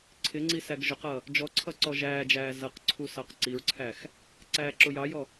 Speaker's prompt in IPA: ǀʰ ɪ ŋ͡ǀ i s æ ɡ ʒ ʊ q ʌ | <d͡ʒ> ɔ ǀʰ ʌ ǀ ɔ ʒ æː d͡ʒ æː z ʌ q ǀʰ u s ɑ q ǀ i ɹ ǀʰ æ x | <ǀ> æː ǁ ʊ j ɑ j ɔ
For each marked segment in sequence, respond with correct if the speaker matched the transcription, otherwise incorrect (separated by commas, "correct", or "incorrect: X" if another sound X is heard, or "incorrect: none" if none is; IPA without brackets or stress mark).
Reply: correct, correct